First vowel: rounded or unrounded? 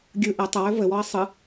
unrounded